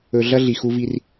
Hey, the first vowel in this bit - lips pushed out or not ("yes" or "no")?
yes